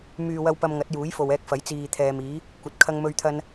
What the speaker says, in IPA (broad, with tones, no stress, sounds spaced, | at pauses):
m yː˨ w ɐ˧ w p ɐ˧ m ŋ ɐ˨˥ t̚ j uː˨˥ j f o˨ w ɛː˧ k̚ f ɐ˨˥ j t͡s iː˨ t̪ʰ ɛː˨ m iː˨˥ | kʷ ɐ˨ t̚ kʰ ɐ˧ ŋ m ɵ˧ ɥ t̪ʰ ɐ˧ n